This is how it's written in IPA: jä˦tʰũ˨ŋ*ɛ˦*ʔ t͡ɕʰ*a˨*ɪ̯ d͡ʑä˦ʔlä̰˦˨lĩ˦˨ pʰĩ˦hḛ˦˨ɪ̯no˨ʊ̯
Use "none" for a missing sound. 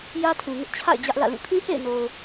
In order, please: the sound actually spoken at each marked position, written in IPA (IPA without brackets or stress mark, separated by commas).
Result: ɪ˦, a̰˦˨